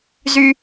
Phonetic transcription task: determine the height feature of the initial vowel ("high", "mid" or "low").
high